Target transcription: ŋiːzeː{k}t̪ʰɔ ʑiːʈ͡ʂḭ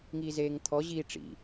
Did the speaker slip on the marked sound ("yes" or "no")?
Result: yes